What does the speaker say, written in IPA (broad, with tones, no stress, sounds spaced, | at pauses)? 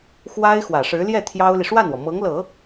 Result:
x w a˥ ɪ̯ x w ä˨˩ ʂ ɻ̩˧˥ l j ɛ˥˩ t̪ʰ j ɑ˥ ʊ̯ l i˨ ʂ w a˥˩ n w ɔ˩ m ɤ˧˥ ŋ l ɤ˨˩˦